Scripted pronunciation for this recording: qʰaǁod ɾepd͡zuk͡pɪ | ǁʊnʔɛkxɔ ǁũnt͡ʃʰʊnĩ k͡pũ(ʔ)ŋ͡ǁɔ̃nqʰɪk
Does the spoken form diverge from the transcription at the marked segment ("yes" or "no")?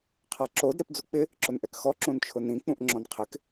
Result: no